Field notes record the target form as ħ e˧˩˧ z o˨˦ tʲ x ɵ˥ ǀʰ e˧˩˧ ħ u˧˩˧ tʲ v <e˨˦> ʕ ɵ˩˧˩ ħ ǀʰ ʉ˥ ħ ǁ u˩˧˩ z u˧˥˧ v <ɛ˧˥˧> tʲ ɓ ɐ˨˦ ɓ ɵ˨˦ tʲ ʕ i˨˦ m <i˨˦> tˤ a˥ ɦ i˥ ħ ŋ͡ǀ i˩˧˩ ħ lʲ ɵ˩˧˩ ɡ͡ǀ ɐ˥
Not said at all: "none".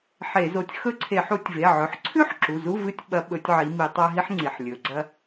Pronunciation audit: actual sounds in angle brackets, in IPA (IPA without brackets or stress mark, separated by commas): e˩˧˩, ɨ˧˥˧, i˧˩˧